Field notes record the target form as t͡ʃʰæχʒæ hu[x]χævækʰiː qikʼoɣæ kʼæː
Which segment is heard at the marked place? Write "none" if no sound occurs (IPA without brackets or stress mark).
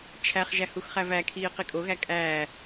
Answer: x